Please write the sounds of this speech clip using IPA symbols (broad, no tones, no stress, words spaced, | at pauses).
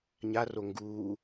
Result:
ɲaro ŋɡuː